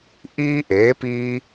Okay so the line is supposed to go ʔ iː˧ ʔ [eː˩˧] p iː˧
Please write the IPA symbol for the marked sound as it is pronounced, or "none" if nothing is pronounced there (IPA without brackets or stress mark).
eː˩˧